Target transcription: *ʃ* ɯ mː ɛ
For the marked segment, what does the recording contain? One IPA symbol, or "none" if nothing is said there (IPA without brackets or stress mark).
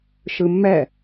ʃ